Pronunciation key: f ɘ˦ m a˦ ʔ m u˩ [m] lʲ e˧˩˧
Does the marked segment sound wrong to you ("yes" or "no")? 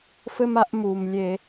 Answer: no